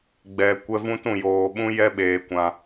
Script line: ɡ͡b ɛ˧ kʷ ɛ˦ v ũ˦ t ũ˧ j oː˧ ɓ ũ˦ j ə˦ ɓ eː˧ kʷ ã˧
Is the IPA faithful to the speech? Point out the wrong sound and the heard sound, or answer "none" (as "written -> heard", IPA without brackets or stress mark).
ə˦ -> ɛ˦